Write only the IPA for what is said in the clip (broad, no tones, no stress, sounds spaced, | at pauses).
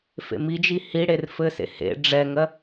f ḛ m i d͡ʒ i h i ɽ e r f ɘ s ḛ h ḛ ɖ͡ʐ ɛ ŋ ɜ